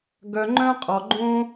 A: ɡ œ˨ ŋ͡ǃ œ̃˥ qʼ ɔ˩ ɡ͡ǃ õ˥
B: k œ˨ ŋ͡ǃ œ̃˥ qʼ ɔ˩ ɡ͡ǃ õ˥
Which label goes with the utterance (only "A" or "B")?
A